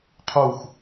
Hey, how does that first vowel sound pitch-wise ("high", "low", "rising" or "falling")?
falling